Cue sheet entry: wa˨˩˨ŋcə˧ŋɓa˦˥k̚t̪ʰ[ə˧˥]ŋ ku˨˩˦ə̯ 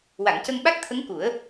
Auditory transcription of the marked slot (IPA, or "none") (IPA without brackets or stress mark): ə˧˥